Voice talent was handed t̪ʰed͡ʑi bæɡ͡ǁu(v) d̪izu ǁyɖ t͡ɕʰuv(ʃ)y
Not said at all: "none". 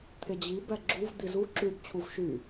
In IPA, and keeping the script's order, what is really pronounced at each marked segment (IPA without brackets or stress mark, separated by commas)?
v, ʃ